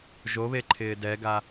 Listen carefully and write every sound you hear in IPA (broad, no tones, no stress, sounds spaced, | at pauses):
ʒ o β e ǃʰ ɪː d ɛ ɡ a